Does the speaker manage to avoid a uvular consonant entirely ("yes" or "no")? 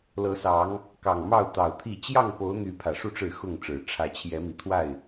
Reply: yes